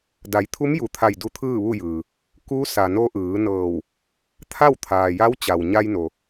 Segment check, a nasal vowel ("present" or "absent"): absent